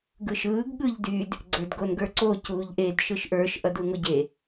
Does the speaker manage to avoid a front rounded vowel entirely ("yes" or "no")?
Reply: no